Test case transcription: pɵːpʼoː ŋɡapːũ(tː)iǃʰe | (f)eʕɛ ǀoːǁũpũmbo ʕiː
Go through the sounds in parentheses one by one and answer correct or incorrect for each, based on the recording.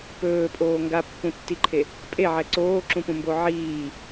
correct, incorrect: pʼ

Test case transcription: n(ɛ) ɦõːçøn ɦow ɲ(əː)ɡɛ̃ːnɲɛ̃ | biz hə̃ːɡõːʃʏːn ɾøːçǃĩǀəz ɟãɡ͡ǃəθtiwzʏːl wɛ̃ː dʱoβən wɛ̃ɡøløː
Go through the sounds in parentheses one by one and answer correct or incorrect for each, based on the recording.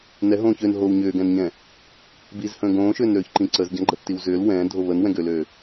correct, incorrect: ʏː

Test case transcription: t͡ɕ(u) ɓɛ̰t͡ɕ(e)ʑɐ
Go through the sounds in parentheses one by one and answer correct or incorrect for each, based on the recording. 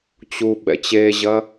correct, correct

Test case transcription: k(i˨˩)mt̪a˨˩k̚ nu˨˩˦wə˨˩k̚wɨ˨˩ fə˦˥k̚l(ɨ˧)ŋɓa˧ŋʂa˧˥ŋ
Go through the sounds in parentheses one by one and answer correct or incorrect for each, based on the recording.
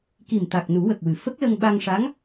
correct, incorrect: ə˧

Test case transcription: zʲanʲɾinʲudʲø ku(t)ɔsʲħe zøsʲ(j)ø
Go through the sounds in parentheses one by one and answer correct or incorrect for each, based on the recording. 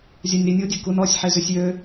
incorrect: n, correct

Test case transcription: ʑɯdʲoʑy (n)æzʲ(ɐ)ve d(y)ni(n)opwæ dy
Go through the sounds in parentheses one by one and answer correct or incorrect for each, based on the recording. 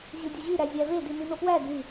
incorrect: ɾ, incorrect: æ, incorrect: i, correct

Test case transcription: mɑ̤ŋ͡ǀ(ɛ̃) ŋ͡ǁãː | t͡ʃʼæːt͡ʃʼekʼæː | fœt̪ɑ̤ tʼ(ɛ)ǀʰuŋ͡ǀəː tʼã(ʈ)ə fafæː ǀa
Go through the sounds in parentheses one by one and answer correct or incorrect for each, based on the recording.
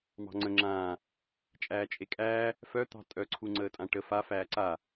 incorrect: ə̃, incorrect: œ, correct

